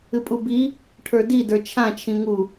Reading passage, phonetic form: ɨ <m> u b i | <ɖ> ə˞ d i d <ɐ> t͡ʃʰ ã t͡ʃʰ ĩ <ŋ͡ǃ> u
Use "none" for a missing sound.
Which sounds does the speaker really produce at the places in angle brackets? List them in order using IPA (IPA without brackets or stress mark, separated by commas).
pʼ, ʈʰ, ə˞, ŋ